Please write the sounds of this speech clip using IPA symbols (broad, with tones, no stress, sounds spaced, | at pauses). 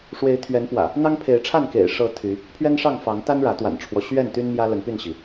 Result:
ʂ w e˨˦ ɪ̯ t̪ʰ ɥ ɛ˨˦ n p w ä̰˨˩ | n̪ ɑ˦ ŋ pʰ e˨˦ ɪ̯ ʈ͡ʂʰ a˥˨ n k ḛ˨˩ ɪ̯ ʂ ɤ˨˦ t̪ʰ y˨˦ | pʰ ɥ ɛ˦ n ʂ ɑ˥˨ ŋ f ɑ˨˦ ŋ t̪ a˦ n ɻ ä˨˦ t̪ w a̰˨˩ n ʈ͡ʂʰ w ɔ˦ ɕ ɥ ɛ˥˨ n t̪ y˦ n m j ä˦ l ə˨˦ n p y˥˨ n ɕ i˩